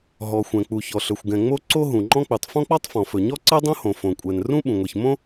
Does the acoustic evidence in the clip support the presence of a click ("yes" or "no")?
yes